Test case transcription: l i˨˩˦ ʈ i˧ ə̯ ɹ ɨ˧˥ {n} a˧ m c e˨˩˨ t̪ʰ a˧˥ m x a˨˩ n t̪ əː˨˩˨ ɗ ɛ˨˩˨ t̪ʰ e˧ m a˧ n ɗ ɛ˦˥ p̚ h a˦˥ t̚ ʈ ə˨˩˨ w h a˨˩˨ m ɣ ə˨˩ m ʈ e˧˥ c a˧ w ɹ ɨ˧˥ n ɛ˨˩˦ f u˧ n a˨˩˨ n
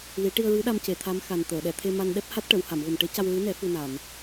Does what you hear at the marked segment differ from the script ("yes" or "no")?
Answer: yes